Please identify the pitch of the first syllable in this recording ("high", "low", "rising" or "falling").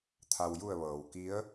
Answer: low